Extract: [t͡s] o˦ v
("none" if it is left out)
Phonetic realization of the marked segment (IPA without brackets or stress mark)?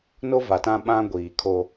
n